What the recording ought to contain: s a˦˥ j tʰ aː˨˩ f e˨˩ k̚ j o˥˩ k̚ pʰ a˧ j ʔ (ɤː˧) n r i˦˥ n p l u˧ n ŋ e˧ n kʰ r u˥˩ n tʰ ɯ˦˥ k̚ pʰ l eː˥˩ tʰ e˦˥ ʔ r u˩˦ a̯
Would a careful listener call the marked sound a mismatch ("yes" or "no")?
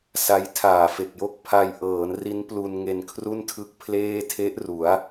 yes